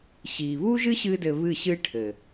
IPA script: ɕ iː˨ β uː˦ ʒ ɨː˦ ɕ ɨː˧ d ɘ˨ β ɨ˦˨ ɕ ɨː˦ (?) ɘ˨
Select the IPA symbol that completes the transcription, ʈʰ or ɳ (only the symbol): ʈʰ